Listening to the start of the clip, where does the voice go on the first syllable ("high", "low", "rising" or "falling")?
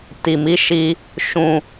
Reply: low